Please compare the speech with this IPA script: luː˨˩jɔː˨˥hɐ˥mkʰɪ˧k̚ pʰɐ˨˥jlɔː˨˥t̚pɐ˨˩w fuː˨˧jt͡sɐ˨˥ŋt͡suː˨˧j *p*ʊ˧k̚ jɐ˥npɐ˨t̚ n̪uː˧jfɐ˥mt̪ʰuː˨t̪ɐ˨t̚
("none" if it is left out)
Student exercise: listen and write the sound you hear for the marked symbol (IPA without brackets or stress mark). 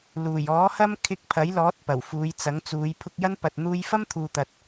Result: pʰ